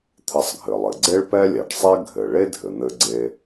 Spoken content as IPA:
t̪ʰ ɘ˧ sˤ ɡʱ ɘ˩ lˠ ɘ˩ ɡ͡ǀ e˥ ɭ p ɛ˥ lʲ ɛ˩ ɖ sˤ ɛ˥ ɡʱ ɘ˩ ɭ e˥ dʱ ɘ˩ n̪ ɘ˧ ɡ͡ǀ e˧

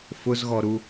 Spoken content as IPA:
f ʊ z ɣ ɔ ɾ u

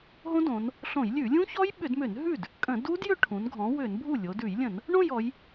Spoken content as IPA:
ɦ õ˦˥ d õ˩˧ n | ɬ õ˧˩˧ j lʲ ʉ˧˩˧ lʲ ũ˦˥ ç ɔ˦˥ j ɓ ʏ˧˩˧ d m ʏ˧˩˧ n ɦ ʉ˥˩ d | kʼ ə̃˧˩˧ d u˦˥ d j ʏ˥˧ ʈʰ ũ˩˧ n ɡʱ ɔ̃˩˧ w ʏ˧˩˧ n bʱ u˥˩ lʲ o˩˧ d ʉ˧˩˧ j lʲ ə̃˧˩˧ n | ɳ õ˥˧ j ɔ˩˧ j

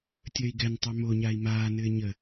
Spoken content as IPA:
tʲ əː i̯ ɡ ɛ n tˤ ɑ m o ɲ a i̯ m aː n ɘː ɲ ə

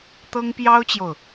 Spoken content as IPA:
t̪ ɤ˥ ŋ p j ɑ˥ ʊ̯ t͡ɕ j o˨ ʊ̯

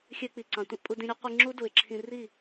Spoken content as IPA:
xʲ ø˧ k͡p i˨ ǀ ɑ̃˨ tʷ ẽ˦ ʔ pʼ u˧ d ĩ˧ ɾʲ o˦ qʷ i˧ ŋ͡ǁ u˦ d u˨ ɪ̯ ǁʰ ĩ˧ r i˦˨

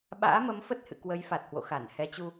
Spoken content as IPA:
ɓ a̰ː˧˥ m ə˨˦ m f ə˦˥ t̚ h ɨ̰˧˨ k w ə˨˦ j f a˨˩ t̚ h w o̰˧˨ x a˧˩ n h ɛ˨˦ t͡ɕ u˧

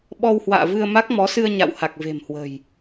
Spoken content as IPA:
ɓ ɔ˧ w h w a̰ː˧˨ v ɨ˧ ə̯ m a˦˥ k̚ m ɔ˨˦ s ɨ˧ ə̯ ɲ a̰˧˨ w h a˨˩ k̚ v e̤˨˩ m h w ə̤˨˩ j

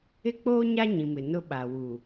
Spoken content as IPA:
ɪ˦ k͡p oː˦ ɲ a˦ ɲ ĩ˨ m ɪ˨ n ʊ˦ ɓ a˨ w u˨

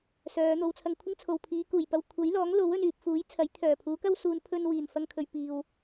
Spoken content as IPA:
s œː˨˧ n̪ o˧ w t͡sʰ ɐ˧ ŋ kʷʰ ɪ˥ ŋ t͡sʰ o˨ w pʰ iː˨˧ k uː˨˩ j p ɐ˧ w kʷʰ ɐ˨˥ j l ɔː˨˥ ŋ l o˨˥ w ɵ˧ n yː˨ p̚ f uː˨˥ j t͡sʰ ɐ˨˥ j t̪ʰ œː˨˩ pʰ uː˨˥ k ɐ˥ w s uː˨˧ n pʰ ɵ˧ n w iː˨˩ n f ɐ˧ ŋ kʰ ɵ˨ ɥ p iː˨ w

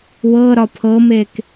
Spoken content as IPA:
w ɤ ɾ ɒ pʰ ɤ m e k

